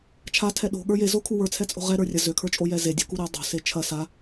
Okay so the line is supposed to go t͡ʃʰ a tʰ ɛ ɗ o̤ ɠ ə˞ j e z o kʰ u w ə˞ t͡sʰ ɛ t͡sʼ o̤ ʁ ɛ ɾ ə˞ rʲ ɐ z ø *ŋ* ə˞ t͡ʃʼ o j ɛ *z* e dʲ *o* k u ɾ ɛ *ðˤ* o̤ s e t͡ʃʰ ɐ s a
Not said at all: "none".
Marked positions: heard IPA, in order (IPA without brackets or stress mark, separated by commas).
kʰ, z, o̤, dˤ